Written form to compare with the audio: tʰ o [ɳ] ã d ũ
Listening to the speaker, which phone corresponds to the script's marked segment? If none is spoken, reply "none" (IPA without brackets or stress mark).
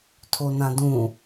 n